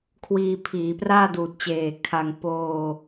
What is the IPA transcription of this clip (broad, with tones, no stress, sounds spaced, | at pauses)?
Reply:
kʰ w iː˧ pʰ iː˩˦ p r aː˥˩ d uː˨˩ t̚ t͡ɕ eː˨˩ kʰ a˧ ŋ p oː˧